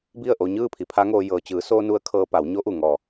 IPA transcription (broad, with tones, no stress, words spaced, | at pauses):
bi˥˨ə̯ʔo˧ ɲɯː˥˨pʰi˩˧pʰa˧˥ŋoː˧ jɤː˩t͡ɕɯː˩˧soː˧ nu˧˥ə̯kʰɤː˧pa˩˧w ɲo˧˥ʔu˧˩ ŋɔː˧˩